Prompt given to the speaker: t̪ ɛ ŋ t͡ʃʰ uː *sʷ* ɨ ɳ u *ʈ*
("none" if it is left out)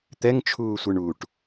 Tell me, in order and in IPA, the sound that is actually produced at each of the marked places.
sʷ, ʈ

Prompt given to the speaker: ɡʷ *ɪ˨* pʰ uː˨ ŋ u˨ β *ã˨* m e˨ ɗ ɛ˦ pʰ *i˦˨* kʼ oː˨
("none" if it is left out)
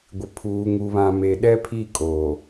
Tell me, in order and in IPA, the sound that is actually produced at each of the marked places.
ɪ˨, ã˨, i˦˨

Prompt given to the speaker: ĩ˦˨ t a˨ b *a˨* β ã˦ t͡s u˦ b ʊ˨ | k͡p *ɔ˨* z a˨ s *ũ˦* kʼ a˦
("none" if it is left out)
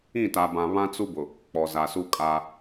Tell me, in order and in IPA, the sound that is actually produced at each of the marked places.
ã˨, ɔ˨, u˦

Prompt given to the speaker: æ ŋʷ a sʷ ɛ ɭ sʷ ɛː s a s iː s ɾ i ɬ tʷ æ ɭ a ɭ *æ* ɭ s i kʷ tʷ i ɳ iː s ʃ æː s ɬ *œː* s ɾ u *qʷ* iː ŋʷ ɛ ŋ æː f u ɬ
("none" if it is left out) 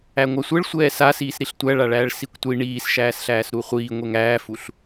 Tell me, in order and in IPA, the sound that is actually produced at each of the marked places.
æː, æː, χʷ

